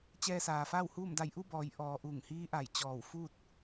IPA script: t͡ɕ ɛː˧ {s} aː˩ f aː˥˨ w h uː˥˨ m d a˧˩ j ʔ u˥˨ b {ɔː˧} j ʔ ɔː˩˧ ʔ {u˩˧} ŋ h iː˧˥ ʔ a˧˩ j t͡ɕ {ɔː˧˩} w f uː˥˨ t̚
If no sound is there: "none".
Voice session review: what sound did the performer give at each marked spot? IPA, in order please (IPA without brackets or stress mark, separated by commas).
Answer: s, ɔː˩˧, u˧˩, ɔː˧˩